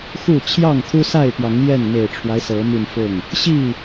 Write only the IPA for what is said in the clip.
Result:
xu˥˨ t͡ɕʰjɑ˥˨ŋt̪ʰu˦sa˥˨ɪ̯pjɑ˨˦ŋ jɛ˥˨nme˨˩ɪ̯ʈ͡ʂʰwa˦ɪ̯ sɤ˨˦my˧nfʊ˥˨ŋ | ɕi˥˨

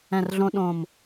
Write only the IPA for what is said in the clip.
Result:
ɛ̃˨˩rɮõ˧ ɗõ˨˩m

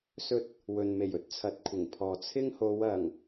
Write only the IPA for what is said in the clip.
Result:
sɵ˧t̚ | wɵ˨nme˨˩jɵ˥t̚ t͡sʰɐ˨˥t̚kʷʰɪ˨˩ŋpʰɔː˨ t͡sʰɪ˥ŋho˨˧w ɐ˨˩ŋ

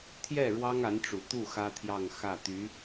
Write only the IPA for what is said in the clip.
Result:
t̪ʰjɛ˥˩ ɻwɑ˥ŋa˧˥nʈ͡ʂu˨˩t̪u˥˩ xä˥t̪ʰjɑ˥˧ŋ xä˥˩t̪y˧˥

